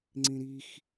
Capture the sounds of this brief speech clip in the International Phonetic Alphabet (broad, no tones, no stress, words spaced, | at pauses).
ŋ͡ǀĩɾix